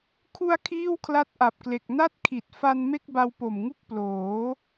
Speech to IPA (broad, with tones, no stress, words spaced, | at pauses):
kʰu˧a̯ kʰiː˥˩wkʰla˦˥t̚ʔa˨˩p̚kle˨˩k̚ na˥˩t̚kʰi˨˩t̚fa˧n me˥˩k̚ba˧wpo˨˩mŋu˥˩k̚ ploː˩˦